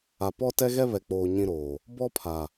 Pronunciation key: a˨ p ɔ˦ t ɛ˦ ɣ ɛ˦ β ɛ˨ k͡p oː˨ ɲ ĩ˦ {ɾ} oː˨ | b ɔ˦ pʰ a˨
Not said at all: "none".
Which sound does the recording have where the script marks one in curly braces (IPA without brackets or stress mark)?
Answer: ɾ